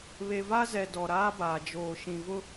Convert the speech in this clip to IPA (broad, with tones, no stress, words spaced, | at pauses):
βe˨va˦zɛ˨ dɔ˨ɾaː˦baː˨ d͡ʒoː˨ ʃĩ˨vʊ˦